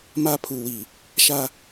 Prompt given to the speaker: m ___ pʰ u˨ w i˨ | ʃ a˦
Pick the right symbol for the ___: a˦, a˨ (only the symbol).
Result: a˦